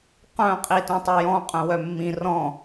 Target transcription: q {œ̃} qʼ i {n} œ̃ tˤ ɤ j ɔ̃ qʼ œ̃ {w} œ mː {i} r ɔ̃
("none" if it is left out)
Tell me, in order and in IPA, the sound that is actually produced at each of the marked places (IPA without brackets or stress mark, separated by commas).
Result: œ̃, t, w, ĩ